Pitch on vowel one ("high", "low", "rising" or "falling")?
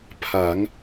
rising